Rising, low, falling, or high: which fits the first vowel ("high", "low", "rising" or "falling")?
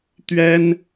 high